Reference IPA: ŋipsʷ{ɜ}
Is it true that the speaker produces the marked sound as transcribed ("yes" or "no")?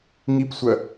yes